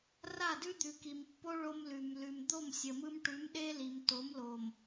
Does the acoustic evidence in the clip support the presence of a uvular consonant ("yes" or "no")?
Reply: no